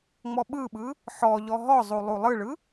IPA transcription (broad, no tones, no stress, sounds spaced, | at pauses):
ŋ͡m ɔ ɓ ɯ ɓ ɯ | ħ ɔ ʎ ɔ ɦ ɔ zˤ u lˠ u lˠ ɯ ɭ ɯ